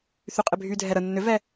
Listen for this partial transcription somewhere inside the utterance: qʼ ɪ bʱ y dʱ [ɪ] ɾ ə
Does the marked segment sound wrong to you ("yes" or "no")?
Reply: yes